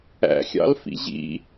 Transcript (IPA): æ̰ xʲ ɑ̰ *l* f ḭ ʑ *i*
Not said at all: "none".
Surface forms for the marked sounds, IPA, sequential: l, ḭ

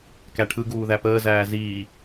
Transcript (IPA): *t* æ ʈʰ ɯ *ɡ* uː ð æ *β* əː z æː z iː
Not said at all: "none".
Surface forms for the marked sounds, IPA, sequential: k, ɡ, p

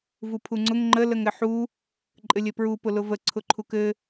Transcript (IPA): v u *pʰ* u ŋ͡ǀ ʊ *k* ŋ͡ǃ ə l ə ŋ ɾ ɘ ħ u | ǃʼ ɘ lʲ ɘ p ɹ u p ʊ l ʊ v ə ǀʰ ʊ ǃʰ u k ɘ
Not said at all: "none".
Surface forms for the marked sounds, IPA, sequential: pʰ, ŋ

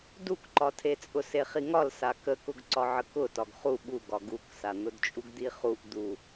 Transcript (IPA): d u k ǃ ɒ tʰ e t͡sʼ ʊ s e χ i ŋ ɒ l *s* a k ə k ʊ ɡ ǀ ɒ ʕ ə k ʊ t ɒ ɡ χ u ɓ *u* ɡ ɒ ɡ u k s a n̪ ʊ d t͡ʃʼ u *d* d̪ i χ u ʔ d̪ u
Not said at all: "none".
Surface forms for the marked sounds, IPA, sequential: s, u, ɡ

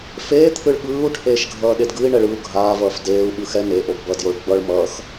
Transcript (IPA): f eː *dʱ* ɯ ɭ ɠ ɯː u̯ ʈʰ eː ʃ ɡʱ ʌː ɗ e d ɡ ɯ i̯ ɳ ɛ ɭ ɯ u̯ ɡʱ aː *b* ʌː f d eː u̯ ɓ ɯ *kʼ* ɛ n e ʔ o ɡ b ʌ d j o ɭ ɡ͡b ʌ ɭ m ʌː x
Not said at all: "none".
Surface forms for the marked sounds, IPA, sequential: t̪ʰ, v, x

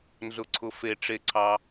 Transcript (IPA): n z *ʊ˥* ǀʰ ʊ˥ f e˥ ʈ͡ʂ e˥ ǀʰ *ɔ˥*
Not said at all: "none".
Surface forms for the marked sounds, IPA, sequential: ʊ˥, ɑ˥

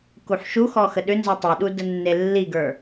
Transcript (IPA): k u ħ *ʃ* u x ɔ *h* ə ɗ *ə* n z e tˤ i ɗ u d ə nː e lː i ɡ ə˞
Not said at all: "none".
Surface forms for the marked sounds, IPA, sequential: ʃ, x, ʏ

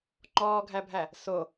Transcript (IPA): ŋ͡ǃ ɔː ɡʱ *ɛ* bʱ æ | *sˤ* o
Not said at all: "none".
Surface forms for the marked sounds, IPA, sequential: æ, s

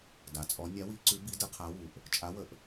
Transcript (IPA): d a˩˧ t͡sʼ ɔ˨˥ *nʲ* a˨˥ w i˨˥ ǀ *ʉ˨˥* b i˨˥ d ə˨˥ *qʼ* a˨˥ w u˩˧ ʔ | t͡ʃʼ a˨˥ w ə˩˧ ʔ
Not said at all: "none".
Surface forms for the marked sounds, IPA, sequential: nʲ, ʉ˨˥, qʰ

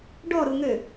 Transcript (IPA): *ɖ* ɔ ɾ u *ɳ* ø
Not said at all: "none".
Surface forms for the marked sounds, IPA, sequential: ɖ, ŋ

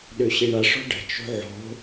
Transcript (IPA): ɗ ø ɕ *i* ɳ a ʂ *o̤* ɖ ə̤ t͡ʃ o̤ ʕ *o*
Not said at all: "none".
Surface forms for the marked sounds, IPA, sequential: i, ɔ̤, o̤

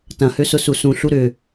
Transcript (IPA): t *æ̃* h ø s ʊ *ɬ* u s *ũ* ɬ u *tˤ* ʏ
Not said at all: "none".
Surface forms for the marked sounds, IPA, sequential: ɐ̃, s, ũ, ɾ

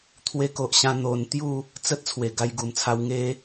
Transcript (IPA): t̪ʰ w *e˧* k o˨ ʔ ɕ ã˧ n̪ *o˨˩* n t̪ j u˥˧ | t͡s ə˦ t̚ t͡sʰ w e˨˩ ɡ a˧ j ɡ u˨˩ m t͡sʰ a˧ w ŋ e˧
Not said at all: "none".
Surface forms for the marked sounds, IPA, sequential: e˧, o˨˩

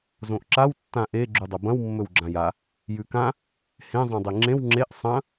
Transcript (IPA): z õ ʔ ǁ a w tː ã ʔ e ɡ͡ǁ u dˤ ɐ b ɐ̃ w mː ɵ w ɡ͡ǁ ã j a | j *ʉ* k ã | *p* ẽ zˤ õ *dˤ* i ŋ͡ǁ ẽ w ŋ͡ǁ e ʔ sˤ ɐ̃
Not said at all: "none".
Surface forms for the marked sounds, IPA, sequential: ʉ, h, dˤ

